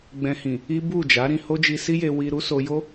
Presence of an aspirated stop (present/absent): absent